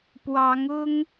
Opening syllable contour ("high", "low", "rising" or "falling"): rising